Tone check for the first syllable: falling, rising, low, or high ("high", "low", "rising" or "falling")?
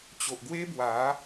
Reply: low